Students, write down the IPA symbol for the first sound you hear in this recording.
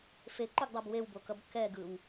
f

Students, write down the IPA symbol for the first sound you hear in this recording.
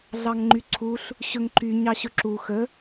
ɮ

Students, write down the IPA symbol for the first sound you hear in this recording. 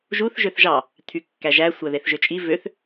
ʒ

